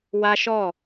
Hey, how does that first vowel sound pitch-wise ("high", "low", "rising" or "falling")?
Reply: high